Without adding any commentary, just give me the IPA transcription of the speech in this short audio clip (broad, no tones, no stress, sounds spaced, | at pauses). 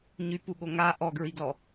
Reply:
ɲ y p u ɠ o ŋ a ʔ ɔ ɡ ɹ i ɡ l ɔ